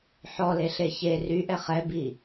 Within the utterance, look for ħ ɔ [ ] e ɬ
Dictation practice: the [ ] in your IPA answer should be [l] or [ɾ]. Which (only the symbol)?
l